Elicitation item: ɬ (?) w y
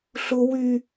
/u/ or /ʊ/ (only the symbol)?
ʊ